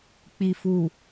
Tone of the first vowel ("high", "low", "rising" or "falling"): low